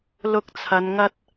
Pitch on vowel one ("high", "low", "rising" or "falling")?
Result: high